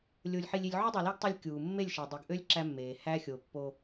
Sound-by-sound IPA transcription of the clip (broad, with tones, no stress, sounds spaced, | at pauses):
lʲ o˨ lʲ ħ i˨ lʲ i˨ lʲ ʕ u˦ dˤ y˨ l i˦ ɡ tˤ ɯ˦ lʲ kʲ uː˨ mː e˦˨ lʲ ʃ e˨ dˤ i˨ ɡ ʔ ø˦ lʲ ǁ æ˦ mː eː˨ h æ˦ xʲ o˨ pː o˦